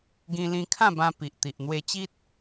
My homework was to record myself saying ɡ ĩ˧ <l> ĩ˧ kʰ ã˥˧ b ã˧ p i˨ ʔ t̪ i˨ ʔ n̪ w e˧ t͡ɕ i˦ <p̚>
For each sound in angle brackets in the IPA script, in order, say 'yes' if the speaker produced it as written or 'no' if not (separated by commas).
yes, no